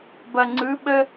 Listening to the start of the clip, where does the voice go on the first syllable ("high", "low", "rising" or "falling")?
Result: low